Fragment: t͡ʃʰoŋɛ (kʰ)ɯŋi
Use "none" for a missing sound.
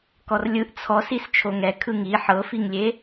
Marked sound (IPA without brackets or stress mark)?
kʰ